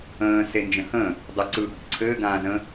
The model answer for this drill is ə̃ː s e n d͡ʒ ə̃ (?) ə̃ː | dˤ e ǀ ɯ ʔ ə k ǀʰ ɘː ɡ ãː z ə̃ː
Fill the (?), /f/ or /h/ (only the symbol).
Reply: h